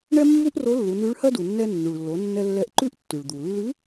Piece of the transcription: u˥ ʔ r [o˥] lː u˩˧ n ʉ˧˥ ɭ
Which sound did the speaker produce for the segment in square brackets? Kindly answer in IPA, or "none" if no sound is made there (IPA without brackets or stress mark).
o˧˥